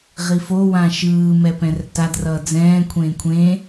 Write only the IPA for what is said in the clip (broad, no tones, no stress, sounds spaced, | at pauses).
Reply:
ʁ i f o w ã ʃ ɯː m ɛ p ɛ̃ r t a d r ʌː d͡z ɛ̃ː kʷʰ ẽː kʷʰ ẽ